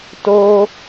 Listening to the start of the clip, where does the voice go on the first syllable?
high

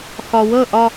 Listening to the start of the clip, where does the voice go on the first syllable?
low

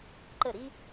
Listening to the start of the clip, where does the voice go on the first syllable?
falling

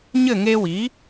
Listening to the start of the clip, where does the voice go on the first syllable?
falling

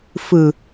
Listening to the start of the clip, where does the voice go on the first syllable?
low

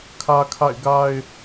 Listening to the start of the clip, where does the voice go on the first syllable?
high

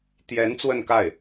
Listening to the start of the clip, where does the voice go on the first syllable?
rising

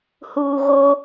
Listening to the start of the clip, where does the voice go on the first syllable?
low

